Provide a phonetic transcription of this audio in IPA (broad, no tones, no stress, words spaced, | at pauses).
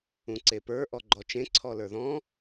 ũǀepə˞ ʔɔɡ͡ǃɔt͡ʃẽ ǀʰɔlə˞ðɔ̃